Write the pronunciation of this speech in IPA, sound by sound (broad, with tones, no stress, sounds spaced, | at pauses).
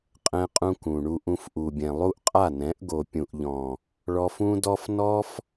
qʼ ɛ̃˦ qʼ ũ˦ k ũ˨ ɳ u˧ ʔ ũ˧ f ʔ u˨ bʲ ɛ̃˨ lˠ u˦ ʔ qʼ a˦˨ n ɛ̃˨˦ ʔ ɡ o˨ pʲ ũ˨ ʔ ʎ ɔ̃˨ | ɭ ɔ˧ f ũ˦ d ɔ˦ f n ɔ˦ f